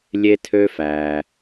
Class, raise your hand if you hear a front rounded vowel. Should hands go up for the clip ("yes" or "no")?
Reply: yes